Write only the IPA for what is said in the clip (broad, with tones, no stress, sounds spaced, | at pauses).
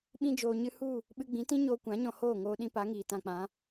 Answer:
ɓ ĩ˧ d͡ʒ oː˨ ɲ ɨ˧ h u˦˨ | ɓ ɨ˧ ɡ͡b ĩ˨˦ t ĩ˦ ɲ oː˧ kʷ ã˨˦ ɲ ɔ̃˧ h oː˦˨ ŋ oː˧ ɗ ĩ˧ p a˨˦ ŋ iː˨ t ã˧ k͡p ã˨˦